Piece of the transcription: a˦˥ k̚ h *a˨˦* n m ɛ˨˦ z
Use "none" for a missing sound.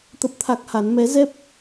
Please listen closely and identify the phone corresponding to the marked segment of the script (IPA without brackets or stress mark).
a˨˦